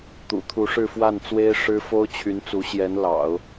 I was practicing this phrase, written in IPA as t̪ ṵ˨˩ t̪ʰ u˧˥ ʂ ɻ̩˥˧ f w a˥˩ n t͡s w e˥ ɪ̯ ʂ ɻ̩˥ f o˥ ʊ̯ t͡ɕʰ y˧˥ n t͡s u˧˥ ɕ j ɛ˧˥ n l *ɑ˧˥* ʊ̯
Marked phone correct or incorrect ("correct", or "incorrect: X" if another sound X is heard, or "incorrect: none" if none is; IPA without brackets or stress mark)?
incorrect: ɑ̰˨˩˦